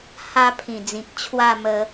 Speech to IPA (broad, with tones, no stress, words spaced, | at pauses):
ha˧ pʰĩ˨˩d͡zĩ˨k̚ t͡ɕʰwa˥˧mə˧